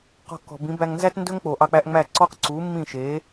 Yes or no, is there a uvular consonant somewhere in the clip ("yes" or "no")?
yes